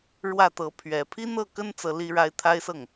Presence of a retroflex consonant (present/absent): present